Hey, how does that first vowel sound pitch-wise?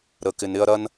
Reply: low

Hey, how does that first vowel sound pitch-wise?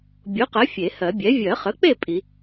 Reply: rising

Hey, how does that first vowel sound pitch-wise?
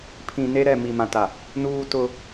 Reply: low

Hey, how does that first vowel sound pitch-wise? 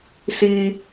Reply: low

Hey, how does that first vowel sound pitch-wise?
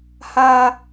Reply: high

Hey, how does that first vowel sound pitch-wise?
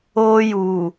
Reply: high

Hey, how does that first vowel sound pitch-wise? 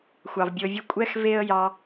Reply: low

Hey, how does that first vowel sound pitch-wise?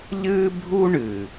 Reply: high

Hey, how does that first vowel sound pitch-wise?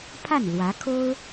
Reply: falling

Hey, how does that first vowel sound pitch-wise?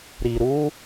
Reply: low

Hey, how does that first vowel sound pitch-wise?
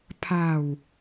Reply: falling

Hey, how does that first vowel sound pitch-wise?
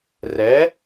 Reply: rising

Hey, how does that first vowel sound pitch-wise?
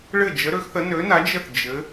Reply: falling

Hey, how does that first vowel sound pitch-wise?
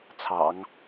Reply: low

